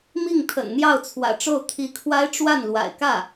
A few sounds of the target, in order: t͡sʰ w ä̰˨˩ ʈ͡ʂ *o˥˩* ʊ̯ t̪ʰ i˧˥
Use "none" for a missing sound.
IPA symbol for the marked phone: o˥˩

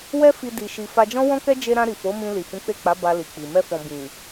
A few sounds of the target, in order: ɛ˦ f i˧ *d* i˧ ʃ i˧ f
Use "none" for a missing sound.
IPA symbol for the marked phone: d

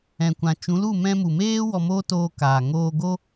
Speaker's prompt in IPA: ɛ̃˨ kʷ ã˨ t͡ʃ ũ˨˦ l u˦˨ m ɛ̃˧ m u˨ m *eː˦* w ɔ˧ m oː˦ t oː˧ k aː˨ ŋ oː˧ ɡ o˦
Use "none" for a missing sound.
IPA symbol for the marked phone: eː˦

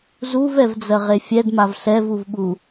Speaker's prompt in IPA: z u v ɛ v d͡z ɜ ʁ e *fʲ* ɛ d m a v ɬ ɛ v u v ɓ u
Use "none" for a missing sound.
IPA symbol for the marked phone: fʲ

